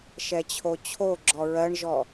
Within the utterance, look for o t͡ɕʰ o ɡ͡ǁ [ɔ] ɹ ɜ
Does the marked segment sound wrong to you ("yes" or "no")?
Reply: no